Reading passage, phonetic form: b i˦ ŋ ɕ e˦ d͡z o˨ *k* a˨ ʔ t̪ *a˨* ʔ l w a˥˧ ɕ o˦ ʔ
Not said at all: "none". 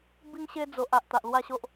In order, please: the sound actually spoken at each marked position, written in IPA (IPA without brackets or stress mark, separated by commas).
ʔ, a˨